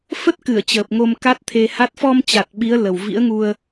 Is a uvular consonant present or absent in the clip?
absent